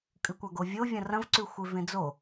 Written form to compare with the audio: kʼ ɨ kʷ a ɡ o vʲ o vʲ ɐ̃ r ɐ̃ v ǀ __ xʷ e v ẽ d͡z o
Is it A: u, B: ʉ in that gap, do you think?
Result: B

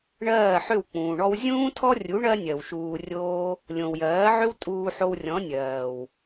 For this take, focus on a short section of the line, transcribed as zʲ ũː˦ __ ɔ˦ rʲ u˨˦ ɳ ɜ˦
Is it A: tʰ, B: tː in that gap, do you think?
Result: A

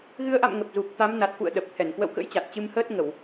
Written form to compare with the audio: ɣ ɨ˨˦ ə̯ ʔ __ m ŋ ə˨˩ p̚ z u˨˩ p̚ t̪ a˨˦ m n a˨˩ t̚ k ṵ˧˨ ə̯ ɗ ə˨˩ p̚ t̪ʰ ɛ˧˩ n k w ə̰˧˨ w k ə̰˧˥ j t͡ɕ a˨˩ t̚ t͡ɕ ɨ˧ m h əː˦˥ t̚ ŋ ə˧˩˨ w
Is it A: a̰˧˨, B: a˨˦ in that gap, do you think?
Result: A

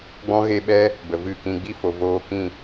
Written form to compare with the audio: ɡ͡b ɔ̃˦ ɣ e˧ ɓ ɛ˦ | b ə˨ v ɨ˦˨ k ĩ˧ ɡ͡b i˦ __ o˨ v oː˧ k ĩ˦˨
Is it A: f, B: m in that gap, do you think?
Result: A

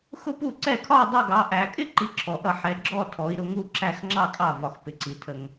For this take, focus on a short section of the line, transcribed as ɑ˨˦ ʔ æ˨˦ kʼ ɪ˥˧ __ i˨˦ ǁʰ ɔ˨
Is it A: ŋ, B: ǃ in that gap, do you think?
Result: B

